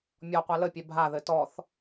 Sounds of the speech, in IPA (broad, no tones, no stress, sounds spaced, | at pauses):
mʲ ɔ qʷ a l ə pʲ ɛ bʱ a ð ɘ t ɔ θ